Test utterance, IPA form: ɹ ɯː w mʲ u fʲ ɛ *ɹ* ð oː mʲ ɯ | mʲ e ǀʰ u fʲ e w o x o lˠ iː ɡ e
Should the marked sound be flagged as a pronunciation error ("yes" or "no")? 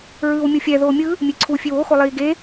yes